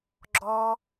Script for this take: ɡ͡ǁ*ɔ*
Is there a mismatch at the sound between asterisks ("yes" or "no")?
no